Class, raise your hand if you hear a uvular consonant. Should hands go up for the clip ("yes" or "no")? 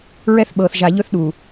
no